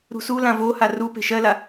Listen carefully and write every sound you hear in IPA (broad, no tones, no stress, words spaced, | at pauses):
ɾṳsu lãvoha ru pe̤ʃɜla